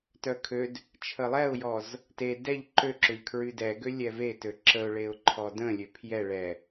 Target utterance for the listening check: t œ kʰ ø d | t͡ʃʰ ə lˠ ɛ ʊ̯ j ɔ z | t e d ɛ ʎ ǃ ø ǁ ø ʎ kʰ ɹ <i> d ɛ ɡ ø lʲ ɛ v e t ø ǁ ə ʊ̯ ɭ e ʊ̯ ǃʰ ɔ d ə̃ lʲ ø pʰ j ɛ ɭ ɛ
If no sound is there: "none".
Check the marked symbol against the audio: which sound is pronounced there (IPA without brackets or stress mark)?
y